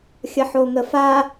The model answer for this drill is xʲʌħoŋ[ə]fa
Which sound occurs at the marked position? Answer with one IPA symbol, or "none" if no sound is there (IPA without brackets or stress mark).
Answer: ə